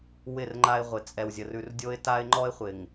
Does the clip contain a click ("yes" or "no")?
yes